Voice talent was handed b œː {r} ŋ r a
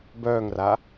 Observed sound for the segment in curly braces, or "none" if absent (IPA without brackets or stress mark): none